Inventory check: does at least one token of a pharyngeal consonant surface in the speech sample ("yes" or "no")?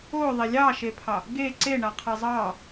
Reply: no